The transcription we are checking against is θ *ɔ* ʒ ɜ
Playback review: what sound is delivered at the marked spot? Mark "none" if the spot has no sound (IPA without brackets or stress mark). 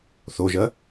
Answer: o